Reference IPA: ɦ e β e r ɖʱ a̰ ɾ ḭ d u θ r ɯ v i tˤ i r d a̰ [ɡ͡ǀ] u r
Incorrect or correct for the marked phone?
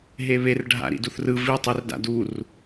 incorrect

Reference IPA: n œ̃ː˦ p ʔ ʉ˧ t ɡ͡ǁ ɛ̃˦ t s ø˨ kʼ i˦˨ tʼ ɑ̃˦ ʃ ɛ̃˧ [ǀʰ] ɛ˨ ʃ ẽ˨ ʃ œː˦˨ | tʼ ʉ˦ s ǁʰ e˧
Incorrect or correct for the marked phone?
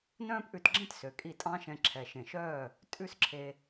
incorrect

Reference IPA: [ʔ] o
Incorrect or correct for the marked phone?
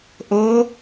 correct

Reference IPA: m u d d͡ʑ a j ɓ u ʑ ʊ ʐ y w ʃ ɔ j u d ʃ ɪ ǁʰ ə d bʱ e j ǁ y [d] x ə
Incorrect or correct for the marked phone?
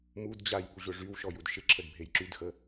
correct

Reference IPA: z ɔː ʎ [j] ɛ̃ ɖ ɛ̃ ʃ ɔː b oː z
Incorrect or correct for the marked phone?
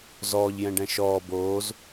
correct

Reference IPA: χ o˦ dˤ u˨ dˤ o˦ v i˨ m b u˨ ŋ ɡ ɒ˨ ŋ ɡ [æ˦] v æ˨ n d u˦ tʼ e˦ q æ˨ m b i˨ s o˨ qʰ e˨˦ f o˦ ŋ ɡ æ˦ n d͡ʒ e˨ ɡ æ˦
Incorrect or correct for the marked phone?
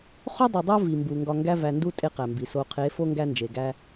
correct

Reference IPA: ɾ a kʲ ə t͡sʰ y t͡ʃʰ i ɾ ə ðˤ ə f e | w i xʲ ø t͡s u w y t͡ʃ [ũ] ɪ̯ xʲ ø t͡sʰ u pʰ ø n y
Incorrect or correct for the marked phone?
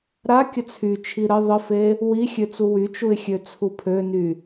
incorrect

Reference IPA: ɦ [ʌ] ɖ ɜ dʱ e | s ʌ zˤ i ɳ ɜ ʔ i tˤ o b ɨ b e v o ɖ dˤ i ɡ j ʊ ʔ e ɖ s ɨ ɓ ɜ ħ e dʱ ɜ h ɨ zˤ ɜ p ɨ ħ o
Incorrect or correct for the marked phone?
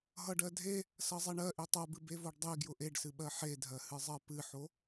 correct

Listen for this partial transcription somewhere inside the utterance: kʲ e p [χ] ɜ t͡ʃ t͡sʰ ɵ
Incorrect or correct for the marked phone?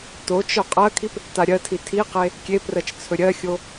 incorrect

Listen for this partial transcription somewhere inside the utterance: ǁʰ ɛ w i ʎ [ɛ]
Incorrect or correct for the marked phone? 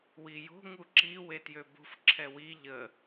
incorrect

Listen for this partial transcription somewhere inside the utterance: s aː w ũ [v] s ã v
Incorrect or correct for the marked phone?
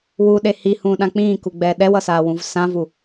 correct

